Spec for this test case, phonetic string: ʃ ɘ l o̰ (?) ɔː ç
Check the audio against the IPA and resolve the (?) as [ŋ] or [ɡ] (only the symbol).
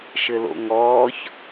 ŋ